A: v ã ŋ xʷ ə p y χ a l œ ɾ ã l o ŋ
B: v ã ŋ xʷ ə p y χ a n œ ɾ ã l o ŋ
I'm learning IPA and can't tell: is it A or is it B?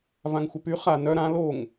B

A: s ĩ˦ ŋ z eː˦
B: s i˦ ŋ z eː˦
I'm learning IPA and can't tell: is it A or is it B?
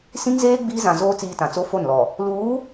A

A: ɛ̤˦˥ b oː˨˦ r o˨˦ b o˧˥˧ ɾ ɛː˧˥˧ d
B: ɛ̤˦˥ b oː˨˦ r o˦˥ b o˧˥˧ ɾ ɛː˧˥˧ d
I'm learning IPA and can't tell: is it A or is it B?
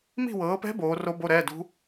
B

